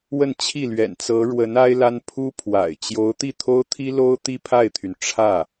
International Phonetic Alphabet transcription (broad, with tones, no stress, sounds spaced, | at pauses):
w ə˥˧ n t͡ɕʰ i˥˩ l ɥ ɛ̰˨˩ n t͡s ɤ˧˥ ɻ w ə˧˥ n a˥ ɪ̯ l a˥ n pʰ u˥ pʰ w a̰˨˩ ɪ̯ t͡ɕ j o˧˥ ʊ̯ t̪ i˥˩ t̪ʰ o˥ ʊ̯ t̪ʰ i˥ l o˥ ʊ̯ t̪ i˥˧ pʰ a˥˩ ɪ̯ t̪ʰ y˩ n ʈ͡ʂʰ ä˥˩